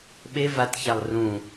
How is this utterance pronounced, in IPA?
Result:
ɓe vatçalˠ rũ

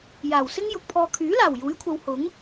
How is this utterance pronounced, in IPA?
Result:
jaː˨˩wsɪ˥ŋ jʊ˨k̚pʰɔː˧ kʰyː˨˥laː˨˩w juː˨˥jkʷʰɐ˨˧w hʊ˨˥ŋ

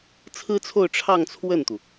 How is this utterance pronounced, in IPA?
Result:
t͡sʰɹ̩˥t͡sʰo˥˧ʊ̯ ʈ͡ʂʰɑ˥˧ŋt͡sʰwə˥˩nt̪u˩

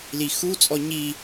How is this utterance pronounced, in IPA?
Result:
lixut͡sʼɔ ɲi

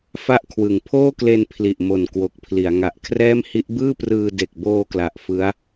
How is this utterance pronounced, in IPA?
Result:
fa˥˩ʔkʰwɯ˨˩ŋ pʰoː˥˩kle˧n pʰli˨˩ʔmo˨˩n kwo˨˩k̚pʰli˩˦a̯ ŋa˨˩ʔkʰrɛː˥˩mhi˦˥ʔ bɯː˥˩prɯː˧ de˨˩k̚boː˧kla˨˩ʔ fɯ˦˥a̯

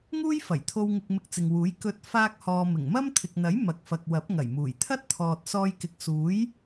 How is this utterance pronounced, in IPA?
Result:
ŋuː˥jfɐ˨˩jt̪ʰo˧w ŋɪ˧k̚ mɪ˧k̚t͡sɪ˨ŋwuː˨˥j kɵ˧t̚ faː˥k̚hɔː˧ mɪ˨˩ŋmɐ˥mt̪ʰɪ˨k̚n̪ɐ˨˥j mɐ˨k̚fɐ˨k̚ wɐ˨˥p̚ŋɐ˨˩jmuː˨˩j t̪ʰɐ˥t̚t̪ʰɔː˨t̚sɔː˧jkɪ˨k̚ suː˨˥j

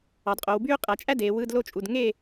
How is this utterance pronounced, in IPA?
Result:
ɑ˩˧dqʼo˩˧w byː˥qʼæ˩˧ t͡ʃʼæ˥ deː˩˧wɯ˧˥˧dlo˥t͡ʃʼu˩˧˩d ŋe˥˨

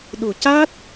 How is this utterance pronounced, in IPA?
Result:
ɗu˨˩caː˦˥t̚

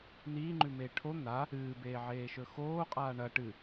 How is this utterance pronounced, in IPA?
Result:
n̪iːŋ͡ǃʉmeː ʈʰo n̪a | ɨːbeːʕeːʃɵ xoːqʼaː ɳɐ ʈɨ

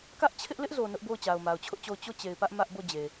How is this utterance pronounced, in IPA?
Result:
kä˦ʔt͡ɕʰɪ˦ʔlɪ˦ʔzo˨ nʊ˦ʔbo˦˨ʊ̯ t͡ɕa˨ʊ̯ma˨ʊ̯t͡ɕʰʊ˦ʔt͡ɕo˦˨ʊ̯ t͡ɕo˦˨ t͡ɕe˨ɪ̯pä˦ʔ mä˦ʔbo˦˨d͡ʑe˨

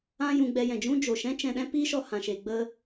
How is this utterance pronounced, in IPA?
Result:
ã˦ jũ˧ɡ͡bɛ˧jɛ̃˨d͡ʒũ˦ d͡ʒo˨ʃɛ̃˦t͡ʃɛ̃˧ɗɛ̃˦ pi˦ʃɔ˧hã˨ ʃe˧ɡ͡bə˦

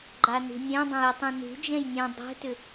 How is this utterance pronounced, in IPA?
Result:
ɡ͡ǃanṳnʲɛ̃dˤɛ̃ jutˤɛ̃ nṳd͡ʒɛ̃j nʲɛ̃ dˤɛ̤tʏ

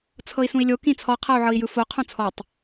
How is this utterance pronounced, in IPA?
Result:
t͡sʰɤi̯sũi̯lʲo kĩt͡sʰɔ qʰɤu̯ʕɤi̯jɯfo qʰũt͡sʰɔtˤ

